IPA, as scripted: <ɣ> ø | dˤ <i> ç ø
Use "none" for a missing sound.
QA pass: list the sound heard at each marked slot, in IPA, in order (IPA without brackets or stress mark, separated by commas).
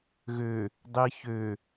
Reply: ɣ, i